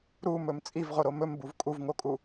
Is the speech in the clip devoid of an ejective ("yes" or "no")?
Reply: no